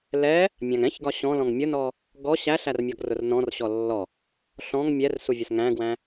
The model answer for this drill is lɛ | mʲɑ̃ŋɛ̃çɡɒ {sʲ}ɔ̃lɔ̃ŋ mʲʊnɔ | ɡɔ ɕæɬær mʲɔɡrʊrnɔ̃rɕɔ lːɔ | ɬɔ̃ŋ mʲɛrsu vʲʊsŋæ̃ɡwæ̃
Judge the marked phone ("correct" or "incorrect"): incorrect